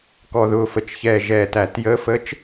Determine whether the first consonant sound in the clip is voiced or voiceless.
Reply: voiceless